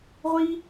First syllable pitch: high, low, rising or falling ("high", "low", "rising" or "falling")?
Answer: high